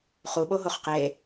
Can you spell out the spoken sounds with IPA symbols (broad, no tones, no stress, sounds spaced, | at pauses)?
χ u ɓ o ɦ o χ q e